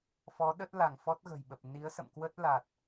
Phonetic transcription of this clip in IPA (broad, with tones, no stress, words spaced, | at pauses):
fɔ˨˦ɗə˦˥t̚la˧˩ŋ fɔ˦˥t̚ɣə̤˨˩jɓə˨˩p̚ ni˨˦ə̯sə̰˧˨mkwə˦˥t̚la˨˩t̚